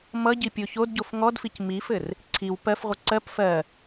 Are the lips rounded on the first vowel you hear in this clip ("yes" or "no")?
no